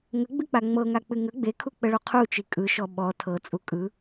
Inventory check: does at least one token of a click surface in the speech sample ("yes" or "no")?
no